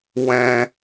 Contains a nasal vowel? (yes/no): yes